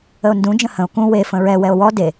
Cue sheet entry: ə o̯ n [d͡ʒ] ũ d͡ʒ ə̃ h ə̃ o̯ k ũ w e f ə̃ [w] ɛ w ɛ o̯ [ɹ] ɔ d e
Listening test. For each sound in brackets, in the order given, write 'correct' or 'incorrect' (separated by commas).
incorrect, incorrect, incorrect